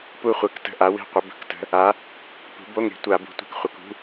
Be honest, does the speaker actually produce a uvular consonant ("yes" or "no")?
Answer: yes